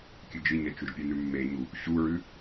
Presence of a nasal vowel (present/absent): absent